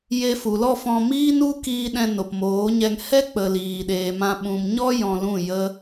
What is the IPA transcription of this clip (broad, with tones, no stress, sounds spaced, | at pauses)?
j e˧ f u˨ l ɔ˦˨ f ɔ̃˧ m iː˦ n u˦ k iː˧ ɗ ɛ̃˧ n o˨ p m oː˨˦ ɲ ɛ˧ ŋ h ɛ˦ k͡p ə˨ l iː˨ ɗ eː˨ m ã˧ ɓ ũ˨ m ɲ ɔ˦ j ɔ̃˧ l ũ˦˨ j ə˦